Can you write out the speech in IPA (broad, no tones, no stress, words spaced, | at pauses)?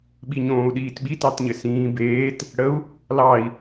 ɓiɲõːu̯ɗiːtɓi tɑtɲɘsĩː beːt | ɽəu̯ | lɑi̯